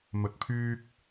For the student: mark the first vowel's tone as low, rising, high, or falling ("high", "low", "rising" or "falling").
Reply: low